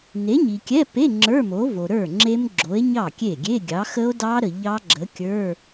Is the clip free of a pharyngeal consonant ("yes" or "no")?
yes